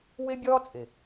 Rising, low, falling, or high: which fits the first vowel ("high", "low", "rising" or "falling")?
high